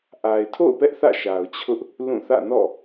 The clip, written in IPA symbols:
ʔa˨ɪ̯tʰo̰˦˨ʊ̯pɛ˦ʔ θä̰˦˨ʃa˨ʊ̯t͡ɕʰʊ˦ʔ | lũ˦˨ θä̰˦˨nɔ̰˦˨

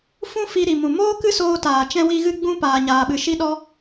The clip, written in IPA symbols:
fũ˦fi˧ ɾi˨mũ˨ moː˦kɨ˦soː˧ taː˨t͡ʃɛ̃˦wi˦ɣɨ˦ ɡ͡bũ˦ paː˧ɲaː˧ɓɨ˧ ʃi˦ɗɔ˦

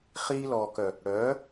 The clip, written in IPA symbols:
χiː˧lɔː˨kœ˨ | ɽœː˨˦

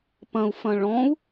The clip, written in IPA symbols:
pɐ̃u̯fɐ̃ ɭɔ̃u̯

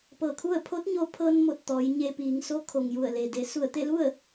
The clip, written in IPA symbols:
pɤː˧˩kʰu˥˨ə̯ pʰo˧˥t̚ɲo˧ pʰɤː˧nmo˧˩t̚ t̪ɔː˩˧jɲe˧piː˩˧ŋ so˧˥ kʰo˩ŋju˧˩ə̯le˩de˩˧ su˧˩ə̯t̪e˥˨lu˥˨ə̯

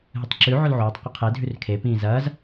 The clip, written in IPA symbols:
ɦɨtˤǁʉ ʕolʕoːtˤ qʷɐqʰe dʱʉrkʰe pĩːzɐːz

